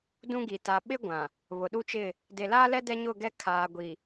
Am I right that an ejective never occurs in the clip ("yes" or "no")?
yes